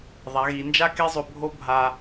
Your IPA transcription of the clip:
ðˤa˩˧ɣi˩˧nd͡ʒa˥ke˥ zˤɵ˧bʱo˥ bʱa˧

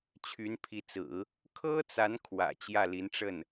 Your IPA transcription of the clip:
t͡ɕʰy˧˥npʰi˧˥t͡sɹ̩˨˩˦ | kʰɤ˥t͡sa˧˥n kʰwä̰˨˩t͡ɕjä˥˩li˧˥nʈ͡ʂə˥˩n

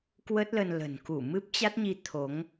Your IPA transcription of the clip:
kwə˦˥t̚ lə˧n lə̤˨˩nku˧˩ mɨ˦˥p̚t͡ɕa˦˥t̚ɲi˧ t̪ʰo˨˦ŋ

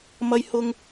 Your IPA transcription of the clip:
mɐ˧jhʊ˧ŋ

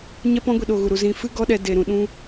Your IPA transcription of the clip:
ɲɛ˦pɔ̃˦ɡʷi˧ ɗo˧ɣu˧ɾu˧ zĩ˧fɨ˦ɡɔ˦ɗɛ˧ de˧ɾũ˧ ɗũ˦

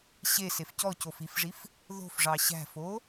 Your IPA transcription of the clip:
ɕesef cɔcof ifʐif | ðo̤fʐɑ ɕæ̤fo

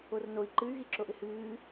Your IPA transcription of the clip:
ornoi̯ ǃɨy̯ɣiǁoʔɪ hɨː

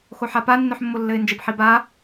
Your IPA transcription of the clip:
xoħapa nːœħmːolːɘɪ̯nd͡ʒɘb ħiba

